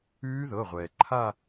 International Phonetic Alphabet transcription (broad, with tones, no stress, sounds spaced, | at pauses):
ʉː˦˥ ð ɤ˩˧˩ ʁʷ ɛː˩ ǃʰ a˥˧